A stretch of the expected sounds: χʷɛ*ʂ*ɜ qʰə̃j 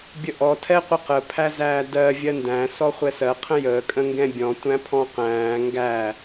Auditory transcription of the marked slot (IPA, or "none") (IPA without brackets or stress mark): s